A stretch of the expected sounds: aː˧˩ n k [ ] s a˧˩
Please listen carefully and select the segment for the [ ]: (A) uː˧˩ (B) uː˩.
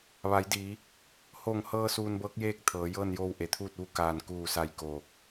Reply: A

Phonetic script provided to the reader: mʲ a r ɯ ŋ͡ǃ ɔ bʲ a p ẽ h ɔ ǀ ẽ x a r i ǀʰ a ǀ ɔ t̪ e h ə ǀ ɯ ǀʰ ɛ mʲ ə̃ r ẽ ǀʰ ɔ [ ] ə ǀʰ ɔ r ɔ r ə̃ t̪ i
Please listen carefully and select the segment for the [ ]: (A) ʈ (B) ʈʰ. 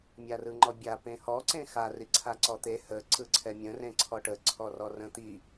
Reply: A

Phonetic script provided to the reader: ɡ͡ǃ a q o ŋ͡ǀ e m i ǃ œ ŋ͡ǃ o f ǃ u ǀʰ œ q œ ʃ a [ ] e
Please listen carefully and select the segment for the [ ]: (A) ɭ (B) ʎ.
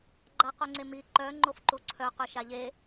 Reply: B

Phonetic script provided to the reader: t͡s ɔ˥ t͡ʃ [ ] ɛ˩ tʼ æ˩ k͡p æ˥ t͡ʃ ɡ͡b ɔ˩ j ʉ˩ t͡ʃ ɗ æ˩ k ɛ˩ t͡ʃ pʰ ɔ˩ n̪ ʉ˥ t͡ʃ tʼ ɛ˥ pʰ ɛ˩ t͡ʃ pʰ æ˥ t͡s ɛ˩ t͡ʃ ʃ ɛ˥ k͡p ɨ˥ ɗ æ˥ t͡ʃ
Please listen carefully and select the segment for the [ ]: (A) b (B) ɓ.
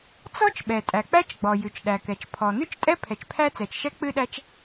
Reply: B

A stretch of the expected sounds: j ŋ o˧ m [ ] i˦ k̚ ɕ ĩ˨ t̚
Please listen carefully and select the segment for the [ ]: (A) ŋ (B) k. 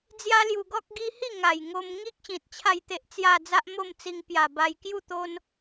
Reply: A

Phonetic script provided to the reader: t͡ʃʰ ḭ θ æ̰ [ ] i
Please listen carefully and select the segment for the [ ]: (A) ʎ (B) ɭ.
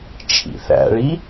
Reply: B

